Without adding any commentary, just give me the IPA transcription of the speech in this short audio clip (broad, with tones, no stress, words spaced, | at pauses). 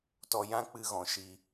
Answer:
tɔ˧jã˦k͡pɨ˧ɣɔ̃˨ ʃi˧